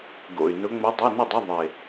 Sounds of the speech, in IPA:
ɡo̰˨˩y̯nʊ˧˥ ŋ͡mo˧˥dˤo˧˥˧nɪ˥˨dˤʊ˧˥˧ ðˤɪ˨˩

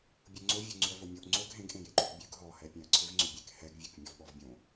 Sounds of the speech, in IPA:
bʲoŋ͡ǀo vʲoŋ͡ǀʉɐ̯vomʲoʔ ŋ͡ǀoɡ ɦẽɡʔẽjeǃʉɡ bʲʉɡ ɦɔhɛpʲẽɐ̯ ǀʰʏvŋ͡ǀʏbʲek hɛɡvʲʉk mʲɔvɓɔvbʲõ

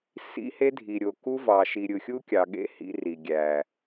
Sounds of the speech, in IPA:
sḭ˦he˦dʱi˨ɾʲo˨ ku˦vɑ˨ʃi˨ ɾʲɯ˨xʲu˦kʲɑ˨ɠḛ˦ hḭ˦ri˨ ɡʲæ˨

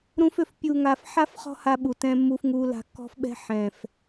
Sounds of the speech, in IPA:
ɾũ˧fʏ˨f pʲu˨ŋa˨f ħa˦f χɔ̤˦ha˧ɓu˨ tɛ̃˧ mːu˧fŋu˧ la̤˧kːɔ̤˦fɓɛ̤˦ ħɛ̃˨f

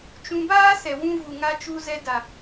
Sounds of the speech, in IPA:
t͡ʃũ˧ baː˦sɛ˨wũ˧vu˨ ŋa˧t͡ʃu˧ zɛ˧da˨

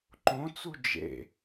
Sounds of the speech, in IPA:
ǃõt͡su d͡ʒḛ

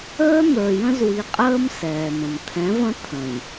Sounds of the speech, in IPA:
əː˦n̪ə˞˨jə̃˦z wi˨qʼəː˦m sɛː˨mə̃˨m t̪ʰɛ̃˨˦və̃˦ t̪ʰə̃˨j

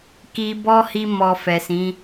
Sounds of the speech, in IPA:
ki˧ bɔ˦hi˧ mɔ˨ fɛ˨sĩ˨˦

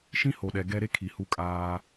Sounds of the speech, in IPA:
ʃĩ˦ho˨ɗɛ˨ ɡɛ˦ ɾe˦kʰi˨ hu˦kʼaː˦

